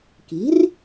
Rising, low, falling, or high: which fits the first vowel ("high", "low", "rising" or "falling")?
rising